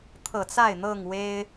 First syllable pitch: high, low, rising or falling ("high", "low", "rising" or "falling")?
low